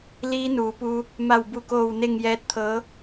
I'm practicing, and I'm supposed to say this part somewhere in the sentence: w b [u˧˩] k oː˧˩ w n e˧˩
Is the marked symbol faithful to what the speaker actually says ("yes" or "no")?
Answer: yes